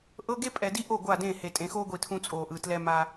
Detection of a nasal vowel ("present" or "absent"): present